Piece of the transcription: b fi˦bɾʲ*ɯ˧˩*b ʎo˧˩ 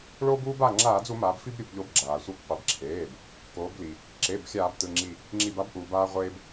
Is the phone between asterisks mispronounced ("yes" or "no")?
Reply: yes